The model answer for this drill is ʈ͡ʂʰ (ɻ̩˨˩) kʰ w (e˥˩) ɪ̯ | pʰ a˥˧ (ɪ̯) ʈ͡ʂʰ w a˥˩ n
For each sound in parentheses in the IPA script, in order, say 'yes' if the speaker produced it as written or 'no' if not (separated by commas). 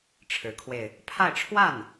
no, no, yes